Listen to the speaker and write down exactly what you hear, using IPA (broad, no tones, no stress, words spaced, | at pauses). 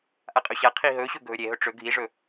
ʔaqʼɵɕaqʰi ɦɵ ɕɵɡʱɵɾʲeɦɵ ʈ͡ʂɵ ɡʱiʐɵ